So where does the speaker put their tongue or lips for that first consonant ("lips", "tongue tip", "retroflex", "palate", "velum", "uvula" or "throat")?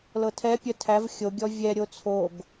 tongue tip